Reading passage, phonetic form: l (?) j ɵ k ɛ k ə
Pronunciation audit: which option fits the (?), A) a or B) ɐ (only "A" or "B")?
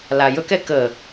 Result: A